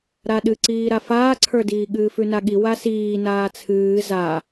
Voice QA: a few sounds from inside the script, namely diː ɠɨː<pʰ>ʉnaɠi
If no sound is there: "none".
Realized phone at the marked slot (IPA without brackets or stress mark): f